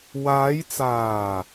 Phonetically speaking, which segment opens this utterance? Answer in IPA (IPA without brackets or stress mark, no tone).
w